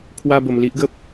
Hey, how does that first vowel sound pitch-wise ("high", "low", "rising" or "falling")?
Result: high